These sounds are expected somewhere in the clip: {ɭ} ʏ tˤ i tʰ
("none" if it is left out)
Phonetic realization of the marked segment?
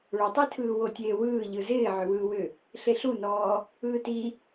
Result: ɭ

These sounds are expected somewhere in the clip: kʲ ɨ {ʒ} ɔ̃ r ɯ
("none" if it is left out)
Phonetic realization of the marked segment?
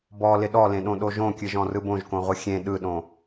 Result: ʒ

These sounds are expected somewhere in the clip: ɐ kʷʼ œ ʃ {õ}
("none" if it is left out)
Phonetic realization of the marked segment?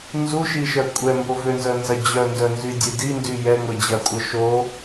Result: o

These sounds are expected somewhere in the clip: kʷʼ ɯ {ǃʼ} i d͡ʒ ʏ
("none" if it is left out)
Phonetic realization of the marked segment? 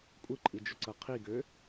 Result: ǃʼ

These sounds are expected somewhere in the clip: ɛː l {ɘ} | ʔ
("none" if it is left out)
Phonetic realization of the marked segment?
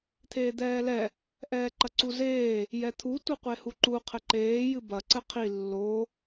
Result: ɛ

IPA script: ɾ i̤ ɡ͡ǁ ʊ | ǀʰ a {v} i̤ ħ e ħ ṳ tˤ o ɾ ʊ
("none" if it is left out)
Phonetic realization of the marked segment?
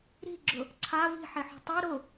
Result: v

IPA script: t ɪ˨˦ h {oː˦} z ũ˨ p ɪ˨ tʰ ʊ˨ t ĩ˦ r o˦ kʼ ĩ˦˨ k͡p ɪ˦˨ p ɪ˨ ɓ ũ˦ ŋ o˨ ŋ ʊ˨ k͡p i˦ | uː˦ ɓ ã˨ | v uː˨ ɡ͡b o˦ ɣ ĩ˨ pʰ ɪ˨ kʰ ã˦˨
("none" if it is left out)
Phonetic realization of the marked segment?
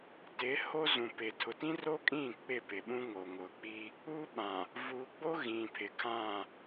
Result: o˦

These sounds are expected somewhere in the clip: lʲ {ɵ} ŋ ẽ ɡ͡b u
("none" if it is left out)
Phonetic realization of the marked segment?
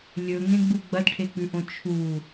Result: ɵ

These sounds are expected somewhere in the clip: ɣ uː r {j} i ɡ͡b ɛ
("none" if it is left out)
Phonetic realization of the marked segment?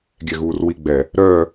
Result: w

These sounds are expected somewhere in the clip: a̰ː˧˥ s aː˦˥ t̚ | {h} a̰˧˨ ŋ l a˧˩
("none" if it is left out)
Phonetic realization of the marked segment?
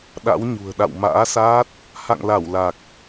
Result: h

